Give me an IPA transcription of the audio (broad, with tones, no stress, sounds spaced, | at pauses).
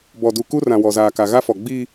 b ɔ˨ d u˨ k u˦ r ã˨ w ɔ˨ z aː˨ k a˨ ɣ a˦ f ɔ˨ ɡ͡b iː˦